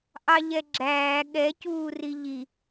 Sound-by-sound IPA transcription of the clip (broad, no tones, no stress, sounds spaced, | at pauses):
ʔ ɑ ʎ ɛ ɡ͡ǁ æː ɠ ɛ c uː r i ʎ i